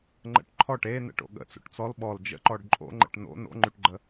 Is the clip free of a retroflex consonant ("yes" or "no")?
no